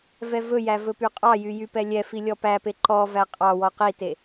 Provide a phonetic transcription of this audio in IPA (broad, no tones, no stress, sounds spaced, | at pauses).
v ɛ v ɵ j æ v ɵ p y qʼ ɑ j y j y p ɛ lʲ ɛ f i lʲ ɔ p æ p e ǃ ɔ v æ qʼ ɑ w ɔ q i t e